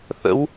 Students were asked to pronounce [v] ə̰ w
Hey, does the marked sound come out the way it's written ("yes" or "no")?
no